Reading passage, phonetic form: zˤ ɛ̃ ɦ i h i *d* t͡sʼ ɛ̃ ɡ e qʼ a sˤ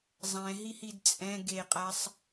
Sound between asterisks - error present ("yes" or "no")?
no